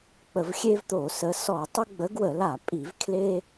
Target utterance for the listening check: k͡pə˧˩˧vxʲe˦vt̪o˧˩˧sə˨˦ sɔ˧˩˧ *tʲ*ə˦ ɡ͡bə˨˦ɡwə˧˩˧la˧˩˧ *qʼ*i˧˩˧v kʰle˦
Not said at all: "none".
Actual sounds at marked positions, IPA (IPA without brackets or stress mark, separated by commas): tˤ, pʼ